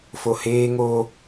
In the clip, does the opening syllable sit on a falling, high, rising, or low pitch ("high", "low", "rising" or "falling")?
low